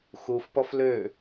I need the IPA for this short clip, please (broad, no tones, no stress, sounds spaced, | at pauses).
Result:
x u f p ɔ f l ø